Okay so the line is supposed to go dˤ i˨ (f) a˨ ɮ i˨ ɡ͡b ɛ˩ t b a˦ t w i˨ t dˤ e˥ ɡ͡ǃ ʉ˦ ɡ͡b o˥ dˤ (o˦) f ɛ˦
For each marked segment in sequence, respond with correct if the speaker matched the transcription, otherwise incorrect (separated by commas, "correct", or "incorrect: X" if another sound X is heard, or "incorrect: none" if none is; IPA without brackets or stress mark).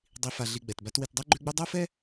correct, correct